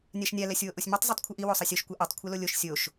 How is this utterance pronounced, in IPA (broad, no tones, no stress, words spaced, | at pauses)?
nʲaʃnʲa lɛsʲwoʔosʲmitˤ zˤɯtˤkʷʰɯʔi wosˤʌsʲoʃ kʷɛʔotˤ kʷʰɛlolʲoʃ sʲoʃ